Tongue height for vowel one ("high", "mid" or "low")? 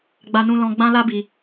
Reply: low